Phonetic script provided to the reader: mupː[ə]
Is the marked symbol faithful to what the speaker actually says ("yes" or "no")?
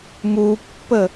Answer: yes